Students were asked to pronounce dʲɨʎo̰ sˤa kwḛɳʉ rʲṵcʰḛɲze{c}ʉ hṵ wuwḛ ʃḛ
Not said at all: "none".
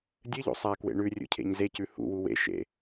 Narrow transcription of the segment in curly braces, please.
c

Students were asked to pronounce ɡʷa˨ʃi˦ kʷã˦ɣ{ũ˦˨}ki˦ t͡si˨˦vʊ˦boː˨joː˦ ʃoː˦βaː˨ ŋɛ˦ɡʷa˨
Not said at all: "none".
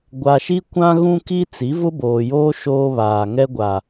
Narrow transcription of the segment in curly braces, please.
ũ˦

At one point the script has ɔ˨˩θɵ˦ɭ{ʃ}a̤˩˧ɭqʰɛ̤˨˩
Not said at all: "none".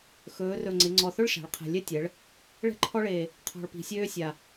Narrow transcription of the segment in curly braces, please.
ʃ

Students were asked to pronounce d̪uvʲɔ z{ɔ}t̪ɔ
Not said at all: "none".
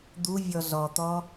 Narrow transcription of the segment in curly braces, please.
ɔ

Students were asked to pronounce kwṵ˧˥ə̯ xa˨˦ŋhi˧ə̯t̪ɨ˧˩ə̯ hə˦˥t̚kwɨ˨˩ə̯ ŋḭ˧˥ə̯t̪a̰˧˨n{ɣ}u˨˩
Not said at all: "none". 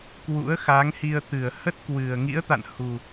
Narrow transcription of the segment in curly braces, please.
h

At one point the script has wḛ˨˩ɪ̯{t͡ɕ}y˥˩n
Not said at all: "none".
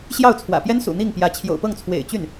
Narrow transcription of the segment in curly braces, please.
t͡ɕ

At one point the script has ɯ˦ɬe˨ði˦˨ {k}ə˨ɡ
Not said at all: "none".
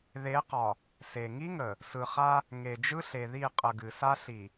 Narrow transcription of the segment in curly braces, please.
qʼ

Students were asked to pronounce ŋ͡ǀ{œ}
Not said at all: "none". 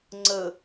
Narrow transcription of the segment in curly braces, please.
ə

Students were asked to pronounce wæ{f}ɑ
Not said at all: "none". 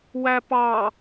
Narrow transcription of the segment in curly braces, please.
p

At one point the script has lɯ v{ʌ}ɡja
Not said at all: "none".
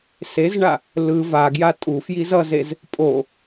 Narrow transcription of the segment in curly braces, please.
a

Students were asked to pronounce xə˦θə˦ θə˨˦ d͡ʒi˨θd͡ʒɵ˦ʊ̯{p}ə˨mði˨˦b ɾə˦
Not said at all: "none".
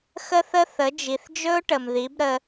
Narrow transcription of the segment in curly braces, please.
ʈ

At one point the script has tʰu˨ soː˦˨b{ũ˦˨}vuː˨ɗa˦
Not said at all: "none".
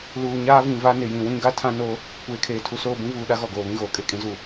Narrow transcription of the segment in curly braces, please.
ũ˦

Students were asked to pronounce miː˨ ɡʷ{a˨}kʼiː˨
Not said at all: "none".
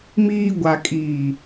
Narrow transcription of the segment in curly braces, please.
a˨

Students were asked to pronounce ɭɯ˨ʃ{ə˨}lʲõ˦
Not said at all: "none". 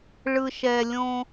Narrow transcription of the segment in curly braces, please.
ɛ˨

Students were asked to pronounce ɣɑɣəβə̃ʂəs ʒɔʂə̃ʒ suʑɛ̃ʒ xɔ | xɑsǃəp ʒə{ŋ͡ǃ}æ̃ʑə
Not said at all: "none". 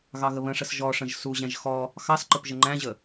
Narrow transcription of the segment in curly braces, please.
ŋ͡ǃ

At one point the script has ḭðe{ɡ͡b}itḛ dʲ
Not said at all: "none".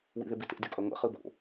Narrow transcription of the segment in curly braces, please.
b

